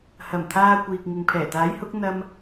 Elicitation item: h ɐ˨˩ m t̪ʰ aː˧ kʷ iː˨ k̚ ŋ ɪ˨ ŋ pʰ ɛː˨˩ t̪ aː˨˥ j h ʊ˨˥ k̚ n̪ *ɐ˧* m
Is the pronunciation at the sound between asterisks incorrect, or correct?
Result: correct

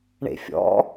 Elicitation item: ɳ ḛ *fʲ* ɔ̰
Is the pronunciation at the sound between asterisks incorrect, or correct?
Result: correct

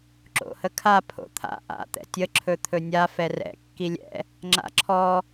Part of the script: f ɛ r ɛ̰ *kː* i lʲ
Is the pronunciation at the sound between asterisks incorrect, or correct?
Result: correct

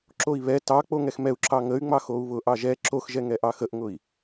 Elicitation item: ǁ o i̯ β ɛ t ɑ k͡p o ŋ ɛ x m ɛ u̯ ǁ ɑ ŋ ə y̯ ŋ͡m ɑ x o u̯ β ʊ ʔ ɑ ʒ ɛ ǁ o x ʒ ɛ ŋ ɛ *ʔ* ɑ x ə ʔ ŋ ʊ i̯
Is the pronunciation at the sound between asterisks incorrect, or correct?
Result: correct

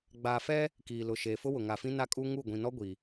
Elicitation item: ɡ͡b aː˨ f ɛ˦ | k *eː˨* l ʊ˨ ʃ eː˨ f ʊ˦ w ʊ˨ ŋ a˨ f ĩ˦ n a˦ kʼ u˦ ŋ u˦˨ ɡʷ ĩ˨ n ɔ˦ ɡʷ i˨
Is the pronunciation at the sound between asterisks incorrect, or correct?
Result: incorrect: iː˨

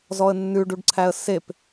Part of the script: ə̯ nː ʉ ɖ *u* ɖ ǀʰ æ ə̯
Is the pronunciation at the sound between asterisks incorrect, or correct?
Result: correct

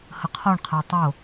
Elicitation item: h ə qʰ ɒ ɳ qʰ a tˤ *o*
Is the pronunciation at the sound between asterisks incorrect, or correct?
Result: correct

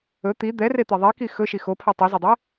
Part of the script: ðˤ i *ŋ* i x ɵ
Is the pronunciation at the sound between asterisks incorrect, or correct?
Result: incorrect: k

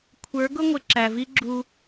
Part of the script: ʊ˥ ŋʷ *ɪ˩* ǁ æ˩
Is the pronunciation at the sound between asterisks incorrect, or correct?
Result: correct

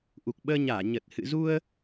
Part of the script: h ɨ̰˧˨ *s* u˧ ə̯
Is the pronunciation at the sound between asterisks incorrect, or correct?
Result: incorrect: z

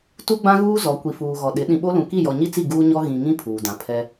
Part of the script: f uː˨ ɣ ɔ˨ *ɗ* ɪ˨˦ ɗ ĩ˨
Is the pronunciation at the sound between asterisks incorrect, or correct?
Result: correct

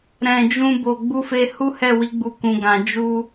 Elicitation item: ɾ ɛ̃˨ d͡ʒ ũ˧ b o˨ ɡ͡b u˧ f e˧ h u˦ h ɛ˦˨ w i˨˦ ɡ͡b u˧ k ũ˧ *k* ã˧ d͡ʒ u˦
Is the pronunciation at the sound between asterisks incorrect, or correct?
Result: incorrect: ɡ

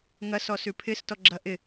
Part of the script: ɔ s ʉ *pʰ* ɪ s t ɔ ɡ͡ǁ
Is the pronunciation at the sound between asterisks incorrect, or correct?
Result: correct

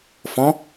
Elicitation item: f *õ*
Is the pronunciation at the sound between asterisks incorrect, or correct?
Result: incorrect: ɔ̃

